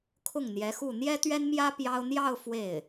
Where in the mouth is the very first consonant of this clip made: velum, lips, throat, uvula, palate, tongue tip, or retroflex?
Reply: velum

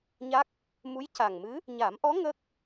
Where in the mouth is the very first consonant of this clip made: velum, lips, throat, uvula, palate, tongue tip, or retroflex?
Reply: palate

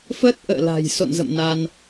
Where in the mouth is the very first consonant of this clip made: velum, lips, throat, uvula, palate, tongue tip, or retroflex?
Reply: lips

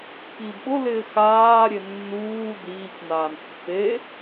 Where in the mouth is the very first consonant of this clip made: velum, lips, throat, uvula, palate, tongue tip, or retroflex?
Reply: velum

